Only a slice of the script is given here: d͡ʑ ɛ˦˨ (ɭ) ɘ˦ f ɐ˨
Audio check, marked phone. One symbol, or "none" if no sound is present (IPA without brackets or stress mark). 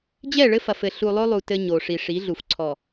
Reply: ɭ